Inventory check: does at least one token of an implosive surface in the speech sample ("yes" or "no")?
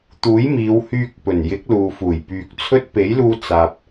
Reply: no